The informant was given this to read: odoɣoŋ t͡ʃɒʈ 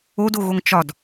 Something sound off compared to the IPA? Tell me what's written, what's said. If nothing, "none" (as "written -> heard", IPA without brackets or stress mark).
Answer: ʈ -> d